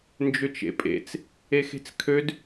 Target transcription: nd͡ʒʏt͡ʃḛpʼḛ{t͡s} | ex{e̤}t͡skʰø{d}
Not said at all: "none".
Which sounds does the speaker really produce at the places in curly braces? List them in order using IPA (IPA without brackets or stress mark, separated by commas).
t͡s, e̤, d